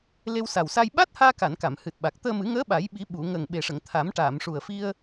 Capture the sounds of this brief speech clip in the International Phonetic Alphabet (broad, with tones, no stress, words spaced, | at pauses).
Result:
le˧wsa˨˩wsa˧j ɓa˦˥t̚haː˧ka˨˩˨n ka˨˩˨mhɨ˨˩t̚ɓa˨˩k̚ t̪əː˧mɨ˨˩˦ ŋəː˧˥ɓa˨˩˦jɓi˨˩˦ ɓu˨˩˨ ŋə˨˩ŋɓe˨˩ʂə˨˩˨ŋ t̪ʰa˨˩˦mʈaː˨˩˨mʂu˨˩ə̯fi˧ə̯